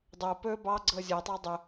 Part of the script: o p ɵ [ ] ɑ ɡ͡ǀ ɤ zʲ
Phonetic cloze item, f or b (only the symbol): b